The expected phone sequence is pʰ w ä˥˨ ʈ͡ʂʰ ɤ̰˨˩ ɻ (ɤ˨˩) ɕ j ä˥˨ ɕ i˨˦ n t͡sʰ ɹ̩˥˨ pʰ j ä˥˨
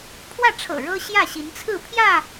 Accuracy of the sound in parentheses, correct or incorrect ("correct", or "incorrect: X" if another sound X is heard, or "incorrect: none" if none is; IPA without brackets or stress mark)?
incorrect: ɤ˦